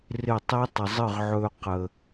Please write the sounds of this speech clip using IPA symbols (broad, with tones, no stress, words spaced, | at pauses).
rɪ˦˨tˤi˦ tˤə˨zˤɨ˦˨ʁʕɵː˧ qə˨